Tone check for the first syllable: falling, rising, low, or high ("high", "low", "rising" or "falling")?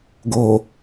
low